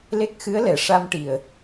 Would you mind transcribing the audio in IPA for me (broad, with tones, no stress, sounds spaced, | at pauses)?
l e˦˥ k̚ x ɨ˧˥ ə̯ l ɛ˨˩˨ ʂ a˧ m ʈ i˨˩ ə̯